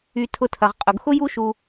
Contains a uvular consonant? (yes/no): yes